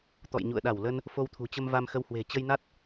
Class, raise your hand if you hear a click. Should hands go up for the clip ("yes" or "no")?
no